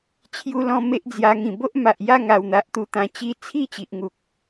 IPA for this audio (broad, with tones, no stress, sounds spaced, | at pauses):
t͡ɕʰ j u˧ l ɔ̃˧ m e˦ ʔ d͡z j a˧ ŋ ĩ˨˩ b o˦ ʔ m a˨ ʔ j a˥˧ ŋ a˨˩ w n̪ a˨ ʔ t̪ u˧ t̪ ã˨˩ t͡ɕ i˧ t͡sʰ i˥˧ t͡ɕ i˨ ʔ ŋ u˨ k̚